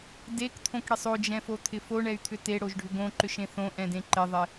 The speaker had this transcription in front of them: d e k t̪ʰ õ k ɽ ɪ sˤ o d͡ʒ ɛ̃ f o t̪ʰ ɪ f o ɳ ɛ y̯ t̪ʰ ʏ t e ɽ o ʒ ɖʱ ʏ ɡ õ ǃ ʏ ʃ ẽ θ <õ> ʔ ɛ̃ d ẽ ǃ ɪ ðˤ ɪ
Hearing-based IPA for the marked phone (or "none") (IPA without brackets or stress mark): õ